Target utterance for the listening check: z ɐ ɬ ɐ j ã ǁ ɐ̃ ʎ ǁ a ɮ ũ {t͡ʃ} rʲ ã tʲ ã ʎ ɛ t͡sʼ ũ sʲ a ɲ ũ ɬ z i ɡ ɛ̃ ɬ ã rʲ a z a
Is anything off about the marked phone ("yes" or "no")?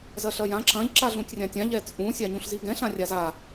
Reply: yes